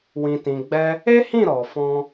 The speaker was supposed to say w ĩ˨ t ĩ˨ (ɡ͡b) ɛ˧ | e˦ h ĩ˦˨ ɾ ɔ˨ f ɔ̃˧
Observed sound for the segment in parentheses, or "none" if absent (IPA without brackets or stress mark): ɡ͡b